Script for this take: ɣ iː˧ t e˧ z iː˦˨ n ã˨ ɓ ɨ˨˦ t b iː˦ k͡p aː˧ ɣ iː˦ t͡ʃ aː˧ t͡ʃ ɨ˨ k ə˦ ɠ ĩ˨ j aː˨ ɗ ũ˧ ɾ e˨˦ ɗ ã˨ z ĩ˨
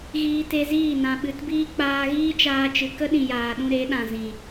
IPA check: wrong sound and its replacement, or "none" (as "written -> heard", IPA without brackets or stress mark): ɠ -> ɗ